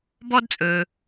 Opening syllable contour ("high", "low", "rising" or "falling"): high